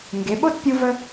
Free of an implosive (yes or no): no